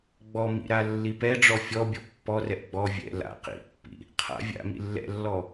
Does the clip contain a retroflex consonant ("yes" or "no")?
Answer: yes